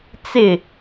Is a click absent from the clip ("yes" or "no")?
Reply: yes